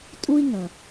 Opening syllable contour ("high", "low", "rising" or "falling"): high